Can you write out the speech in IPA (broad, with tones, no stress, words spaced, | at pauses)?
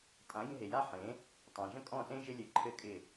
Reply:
tʼã˨˦ ɡʲə̃˧ ɦe˨ja˦ħẽ˨˦ | tˤã˨ ʒə̃˦kʼɔ̃˦˨sẽ˦ ʒɪ˦lʲɘ˨ ǃʰɘ˦kʼɪ˦˨